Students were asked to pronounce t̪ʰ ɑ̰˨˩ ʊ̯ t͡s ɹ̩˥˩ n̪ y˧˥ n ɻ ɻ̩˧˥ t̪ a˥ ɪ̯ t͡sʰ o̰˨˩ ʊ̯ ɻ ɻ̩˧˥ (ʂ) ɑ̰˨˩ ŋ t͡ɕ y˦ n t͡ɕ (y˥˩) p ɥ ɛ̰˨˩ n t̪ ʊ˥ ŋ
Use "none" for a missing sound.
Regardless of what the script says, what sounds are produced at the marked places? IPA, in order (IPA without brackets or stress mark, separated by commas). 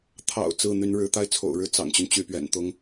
t͡s, y˥˩